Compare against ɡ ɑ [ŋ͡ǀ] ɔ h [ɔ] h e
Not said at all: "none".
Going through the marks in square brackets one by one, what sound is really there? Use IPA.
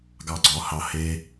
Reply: ɡ͡ǀ, ɑ

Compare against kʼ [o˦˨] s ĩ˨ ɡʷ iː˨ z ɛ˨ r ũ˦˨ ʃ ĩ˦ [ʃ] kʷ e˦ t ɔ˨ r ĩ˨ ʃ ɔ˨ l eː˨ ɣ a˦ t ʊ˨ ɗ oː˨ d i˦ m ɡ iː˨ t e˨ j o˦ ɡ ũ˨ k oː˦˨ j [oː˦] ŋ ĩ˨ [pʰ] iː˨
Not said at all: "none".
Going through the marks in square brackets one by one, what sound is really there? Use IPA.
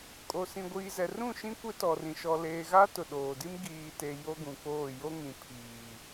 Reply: o˨, none, o˦, pʰ

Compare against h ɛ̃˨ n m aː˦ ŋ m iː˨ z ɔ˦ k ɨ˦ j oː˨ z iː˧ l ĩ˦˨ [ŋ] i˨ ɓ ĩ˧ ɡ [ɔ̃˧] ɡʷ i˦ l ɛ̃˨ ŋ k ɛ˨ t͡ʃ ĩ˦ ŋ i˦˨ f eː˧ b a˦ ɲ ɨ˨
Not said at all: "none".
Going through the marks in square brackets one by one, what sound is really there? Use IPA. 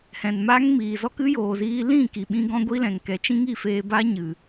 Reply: k, ɔ̃˦

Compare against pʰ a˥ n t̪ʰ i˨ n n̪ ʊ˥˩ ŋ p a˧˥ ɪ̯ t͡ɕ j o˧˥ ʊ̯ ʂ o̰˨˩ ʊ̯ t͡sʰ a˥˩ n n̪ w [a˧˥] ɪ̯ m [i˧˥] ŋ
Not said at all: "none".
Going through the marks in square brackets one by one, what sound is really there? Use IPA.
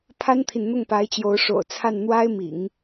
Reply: a˥, ḭ˨˩˦

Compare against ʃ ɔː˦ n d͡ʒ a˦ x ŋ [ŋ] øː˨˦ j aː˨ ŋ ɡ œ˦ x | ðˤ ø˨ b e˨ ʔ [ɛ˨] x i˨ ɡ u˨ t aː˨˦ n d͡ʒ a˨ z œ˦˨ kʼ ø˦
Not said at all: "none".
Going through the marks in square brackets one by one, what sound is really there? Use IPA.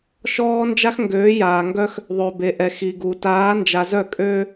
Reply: ɡ, ɛ˨

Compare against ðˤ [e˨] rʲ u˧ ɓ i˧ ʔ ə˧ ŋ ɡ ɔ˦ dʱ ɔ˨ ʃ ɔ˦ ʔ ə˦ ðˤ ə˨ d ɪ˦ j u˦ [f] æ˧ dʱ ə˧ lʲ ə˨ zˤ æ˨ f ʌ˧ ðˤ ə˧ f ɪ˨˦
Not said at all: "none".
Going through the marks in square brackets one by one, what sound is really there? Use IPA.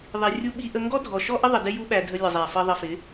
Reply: i˨, ɓ

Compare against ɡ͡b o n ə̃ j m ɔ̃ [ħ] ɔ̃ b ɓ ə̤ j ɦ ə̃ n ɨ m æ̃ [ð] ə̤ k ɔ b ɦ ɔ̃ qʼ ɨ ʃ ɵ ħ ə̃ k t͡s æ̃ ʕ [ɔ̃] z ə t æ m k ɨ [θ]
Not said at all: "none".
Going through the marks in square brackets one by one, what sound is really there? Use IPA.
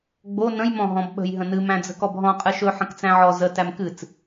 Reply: ɦ, d͡z, ɔ, t͡s

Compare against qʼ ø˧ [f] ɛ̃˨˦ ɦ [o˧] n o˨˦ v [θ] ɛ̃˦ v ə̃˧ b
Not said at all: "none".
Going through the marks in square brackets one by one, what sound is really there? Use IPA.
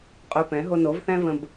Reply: p, o˧, θ

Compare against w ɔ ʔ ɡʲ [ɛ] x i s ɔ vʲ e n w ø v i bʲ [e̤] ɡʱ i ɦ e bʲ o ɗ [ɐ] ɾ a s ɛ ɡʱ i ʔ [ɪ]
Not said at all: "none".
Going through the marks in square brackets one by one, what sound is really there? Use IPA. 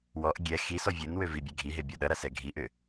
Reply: ɛ, e, ɐ, ʏ

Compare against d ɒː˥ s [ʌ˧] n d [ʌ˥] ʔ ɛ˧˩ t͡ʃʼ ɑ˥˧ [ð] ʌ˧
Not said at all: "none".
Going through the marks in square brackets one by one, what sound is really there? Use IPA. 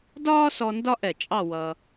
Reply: ɔ˧, ɒ˥, w

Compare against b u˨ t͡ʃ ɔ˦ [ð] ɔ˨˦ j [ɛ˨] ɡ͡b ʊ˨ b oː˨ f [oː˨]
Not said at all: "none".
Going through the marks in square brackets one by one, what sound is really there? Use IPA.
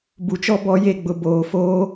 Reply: b, e˨, oː˦

